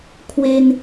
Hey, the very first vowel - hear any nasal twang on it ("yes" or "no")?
no